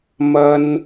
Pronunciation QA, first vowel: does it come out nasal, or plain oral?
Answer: oral